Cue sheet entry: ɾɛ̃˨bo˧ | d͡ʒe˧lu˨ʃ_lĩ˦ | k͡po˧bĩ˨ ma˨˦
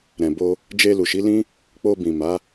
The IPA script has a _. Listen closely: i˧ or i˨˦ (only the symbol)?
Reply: i˨˦